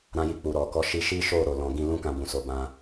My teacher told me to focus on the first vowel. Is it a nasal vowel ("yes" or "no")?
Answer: yes